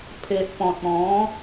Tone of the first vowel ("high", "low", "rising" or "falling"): low